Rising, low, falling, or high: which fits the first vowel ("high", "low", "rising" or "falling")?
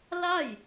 falling